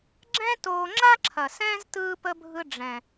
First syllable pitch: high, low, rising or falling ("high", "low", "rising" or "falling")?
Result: high